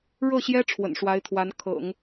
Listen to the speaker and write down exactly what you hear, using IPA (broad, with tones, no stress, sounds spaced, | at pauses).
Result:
ɻ ɤ˥˩ ɕ j ɛ˥ ʈ͡ʂʰ w ə̰˨˩ n ʂ w a˧˥ ɪ̯ t̪ʰ w a˧˥ n kʰ ɤ̰˨˩˦ ŋ